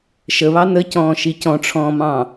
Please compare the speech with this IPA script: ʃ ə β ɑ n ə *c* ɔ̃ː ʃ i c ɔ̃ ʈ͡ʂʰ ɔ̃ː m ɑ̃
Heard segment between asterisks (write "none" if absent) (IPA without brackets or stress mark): c